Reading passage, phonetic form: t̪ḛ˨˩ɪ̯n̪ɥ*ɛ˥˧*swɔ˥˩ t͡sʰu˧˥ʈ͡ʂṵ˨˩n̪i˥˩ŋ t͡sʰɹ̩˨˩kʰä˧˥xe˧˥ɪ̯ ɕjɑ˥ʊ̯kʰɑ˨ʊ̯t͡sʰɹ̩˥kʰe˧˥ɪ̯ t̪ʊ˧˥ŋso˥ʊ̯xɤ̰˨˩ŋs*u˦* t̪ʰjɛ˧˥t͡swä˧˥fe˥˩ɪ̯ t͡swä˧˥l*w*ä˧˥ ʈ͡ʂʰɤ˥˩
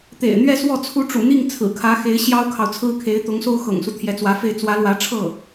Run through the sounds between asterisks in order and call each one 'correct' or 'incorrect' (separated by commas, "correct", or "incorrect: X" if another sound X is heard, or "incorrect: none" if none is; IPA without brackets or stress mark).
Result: correct, correct, correct